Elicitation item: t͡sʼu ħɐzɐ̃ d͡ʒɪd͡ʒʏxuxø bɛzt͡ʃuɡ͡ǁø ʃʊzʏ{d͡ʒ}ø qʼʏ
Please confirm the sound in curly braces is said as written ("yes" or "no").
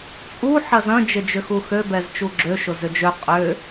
yes